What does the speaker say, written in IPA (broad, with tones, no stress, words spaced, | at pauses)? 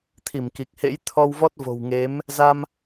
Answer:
t̪ʰi˧˩mki˨˩k̚hḛ˧˥j t̪ʰɔ˧wvɔ˦˥t̚vo̤˨˩wŋe˨˦m | za˧m